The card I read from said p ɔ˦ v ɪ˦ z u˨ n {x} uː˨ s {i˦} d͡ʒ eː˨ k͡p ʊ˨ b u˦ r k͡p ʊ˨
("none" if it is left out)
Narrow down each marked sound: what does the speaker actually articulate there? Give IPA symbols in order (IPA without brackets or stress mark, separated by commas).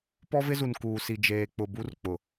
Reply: k, i˨